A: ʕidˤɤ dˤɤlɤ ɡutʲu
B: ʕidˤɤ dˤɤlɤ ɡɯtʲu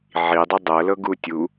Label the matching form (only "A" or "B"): A